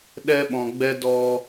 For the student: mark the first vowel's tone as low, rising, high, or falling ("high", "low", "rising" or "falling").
high